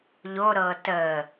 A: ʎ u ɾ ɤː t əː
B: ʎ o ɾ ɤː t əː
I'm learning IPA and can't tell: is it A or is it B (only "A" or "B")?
B